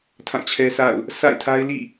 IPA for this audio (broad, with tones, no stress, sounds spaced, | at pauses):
tʰ ã˦˨ t͡ɕʰ ɛ˦ sʰ a̰˦˨ ʊ̯ | sʰ a̰˦˨ ɪ̯ tʰ a˦ ɪ̯ l ḭ˦˨